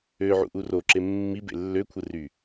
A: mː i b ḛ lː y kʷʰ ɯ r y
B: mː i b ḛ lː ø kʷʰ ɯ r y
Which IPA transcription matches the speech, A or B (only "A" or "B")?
B